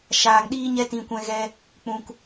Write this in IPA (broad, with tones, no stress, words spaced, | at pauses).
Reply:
ʃaː˧ŋɗiː˦ɲɛ˦ tĩ˧kʷɛ̃˧ɣɛ˧ | k͡pũ˧k